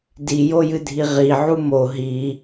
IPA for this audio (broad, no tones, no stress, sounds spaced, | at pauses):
d i j o j ɨ dʱ i ʁ i ʕ u m o ɦ i